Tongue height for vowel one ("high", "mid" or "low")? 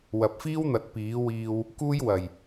low